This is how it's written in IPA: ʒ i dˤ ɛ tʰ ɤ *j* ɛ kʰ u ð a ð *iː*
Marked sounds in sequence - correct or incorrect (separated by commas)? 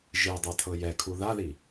correct, incorrect